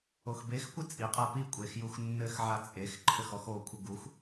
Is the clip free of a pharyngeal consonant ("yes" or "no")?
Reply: no